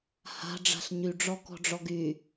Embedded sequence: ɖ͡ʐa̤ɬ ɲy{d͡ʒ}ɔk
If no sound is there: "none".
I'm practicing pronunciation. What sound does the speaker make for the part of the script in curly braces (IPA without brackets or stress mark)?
ɖ͡ʐ